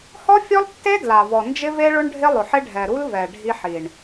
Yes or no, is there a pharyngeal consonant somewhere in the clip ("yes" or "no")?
yes